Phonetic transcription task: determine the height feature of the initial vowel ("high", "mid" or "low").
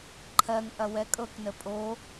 mid